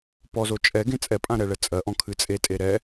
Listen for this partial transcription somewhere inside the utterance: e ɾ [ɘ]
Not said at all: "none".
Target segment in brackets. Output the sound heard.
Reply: ɛ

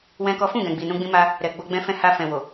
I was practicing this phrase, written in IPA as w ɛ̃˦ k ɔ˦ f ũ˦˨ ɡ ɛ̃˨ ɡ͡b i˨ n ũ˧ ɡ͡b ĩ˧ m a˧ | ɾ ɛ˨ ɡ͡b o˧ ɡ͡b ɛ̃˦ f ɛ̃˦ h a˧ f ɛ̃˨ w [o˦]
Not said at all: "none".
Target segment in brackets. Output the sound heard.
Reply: o˨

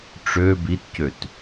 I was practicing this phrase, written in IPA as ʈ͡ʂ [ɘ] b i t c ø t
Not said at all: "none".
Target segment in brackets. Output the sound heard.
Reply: ø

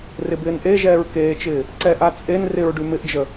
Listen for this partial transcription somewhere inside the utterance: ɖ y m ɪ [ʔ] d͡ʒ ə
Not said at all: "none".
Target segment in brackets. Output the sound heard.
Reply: ʔ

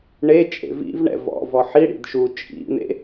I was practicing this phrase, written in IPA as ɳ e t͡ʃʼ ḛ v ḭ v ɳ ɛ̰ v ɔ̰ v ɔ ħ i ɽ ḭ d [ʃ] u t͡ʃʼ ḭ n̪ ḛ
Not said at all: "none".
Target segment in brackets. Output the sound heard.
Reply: ʃ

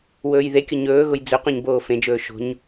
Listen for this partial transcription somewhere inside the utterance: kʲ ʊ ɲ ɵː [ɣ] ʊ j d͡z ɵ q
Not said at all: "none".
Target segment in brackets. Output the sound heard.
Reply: ɣ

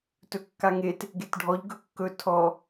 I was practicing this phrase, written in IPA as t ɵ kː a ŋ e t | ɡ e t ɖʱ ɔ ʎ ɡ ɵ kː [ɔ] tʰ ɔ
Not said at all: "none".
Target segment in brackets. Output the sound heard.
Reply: ɵ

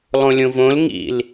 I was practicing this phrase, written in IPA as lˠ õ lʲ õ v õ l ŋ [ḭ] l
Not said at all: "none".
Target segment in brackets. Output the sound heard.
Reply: ḭ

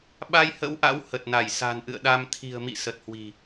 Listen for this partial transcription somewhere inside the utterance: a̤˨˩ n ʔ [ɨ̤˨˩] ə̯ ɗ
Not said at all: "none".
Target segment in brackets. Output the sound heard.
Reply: ɨ̰˧˨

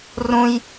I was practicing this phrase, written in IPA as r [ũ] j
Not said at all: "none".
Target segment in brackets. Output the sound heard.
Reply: ũ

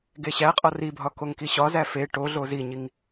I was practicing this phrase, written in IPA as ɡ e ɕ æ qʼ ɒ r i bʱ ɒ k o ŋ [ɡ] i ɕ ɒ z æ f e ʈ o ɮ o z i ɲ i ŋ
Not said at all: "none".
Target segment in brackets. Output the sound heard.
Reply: k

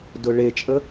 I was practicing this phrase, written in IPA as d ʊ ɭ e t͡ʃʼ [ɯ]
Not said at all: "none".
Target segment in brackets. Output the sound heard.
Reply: ə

